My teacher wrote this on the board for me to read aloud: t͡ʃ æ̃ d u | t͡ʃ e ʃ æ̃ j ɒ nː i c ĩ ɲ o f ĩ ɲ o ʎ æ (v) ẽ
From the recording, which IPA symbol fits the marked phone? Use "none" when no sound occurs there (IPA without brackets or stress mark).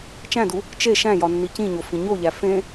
f